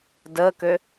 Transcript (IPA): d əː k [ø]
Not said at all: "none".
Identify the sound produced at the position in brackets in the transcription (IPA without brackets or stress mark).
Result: ø